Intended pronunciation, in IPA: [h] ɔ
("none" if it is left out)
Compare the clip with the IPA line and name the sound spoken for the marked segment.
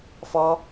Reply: f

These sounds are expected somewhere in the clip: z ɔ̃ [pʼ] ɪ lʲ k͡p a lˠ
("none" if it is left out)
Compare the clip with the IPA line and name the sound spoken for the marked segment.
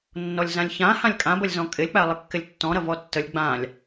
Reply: kʼ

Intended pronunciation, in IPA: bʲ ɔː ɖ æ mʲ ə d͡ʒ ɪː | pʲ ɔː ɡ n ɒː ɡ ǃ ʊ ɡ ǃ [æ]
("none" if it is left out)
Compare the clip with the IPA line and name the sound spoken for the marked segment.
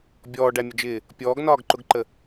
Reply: ə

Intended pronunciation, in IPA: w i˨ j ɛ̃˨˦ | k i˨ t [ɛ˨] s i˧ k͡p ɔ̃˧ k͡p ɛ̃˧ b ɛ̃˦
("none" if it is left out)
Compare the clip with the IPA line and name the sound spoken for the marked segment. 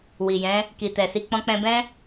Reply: ɛ˨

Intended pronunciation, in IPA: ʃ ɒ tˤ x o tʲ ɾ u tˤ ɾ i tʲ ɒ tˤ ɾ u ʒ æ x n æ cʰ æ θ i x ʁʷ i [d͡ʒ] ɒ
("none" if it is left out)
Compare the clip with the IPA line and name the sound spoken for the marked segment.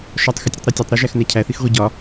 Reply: ɟ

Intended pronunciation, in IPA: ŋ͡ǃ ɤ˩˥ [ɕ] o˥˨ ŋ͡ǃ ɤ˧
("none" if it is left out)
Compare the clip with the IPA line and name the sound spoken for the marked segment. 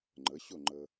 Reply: ɕ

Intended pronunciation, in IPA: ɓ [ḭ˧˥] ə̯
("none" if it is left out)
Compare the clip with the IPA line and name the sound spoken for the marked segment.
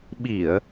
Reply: i˧˩˨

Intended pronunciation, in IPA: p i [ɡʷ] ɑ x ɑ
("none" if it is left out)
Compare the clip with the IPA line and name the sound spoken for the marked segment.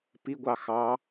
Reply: ɡʷ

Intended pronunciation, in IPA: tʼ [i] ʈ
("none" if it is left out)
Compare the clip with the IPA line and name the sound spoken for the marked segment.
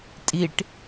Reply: i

